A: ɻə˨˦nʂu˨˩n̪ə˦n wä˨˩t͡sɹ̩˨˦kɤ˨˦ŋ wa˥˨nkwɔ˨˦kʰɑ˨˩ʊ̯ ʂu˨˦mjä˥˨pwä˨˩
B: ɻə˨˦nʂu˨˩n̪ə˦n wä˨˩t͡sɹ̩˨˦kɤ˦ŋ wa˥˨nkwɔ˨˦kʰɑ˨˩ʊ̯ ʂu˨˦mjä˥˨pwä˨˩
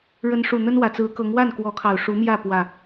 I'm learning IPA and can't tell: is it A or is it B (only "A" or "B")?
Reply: A